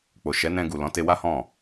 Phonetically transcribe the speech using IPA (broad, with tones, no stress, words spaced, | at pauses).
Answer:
k͡po˨ʃɛ˨˦nɛ̃˧ ɡu˨lɔ̃˨˦ te˧wa˦hɔ̃˦˨